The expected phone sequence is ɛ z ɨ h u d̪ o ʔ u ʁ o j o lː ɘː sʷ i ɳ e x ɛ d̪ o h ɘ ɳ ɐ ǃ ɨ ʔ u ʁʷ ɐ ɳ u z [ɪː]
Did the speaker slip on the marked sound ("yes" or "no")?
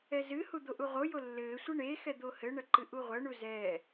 yes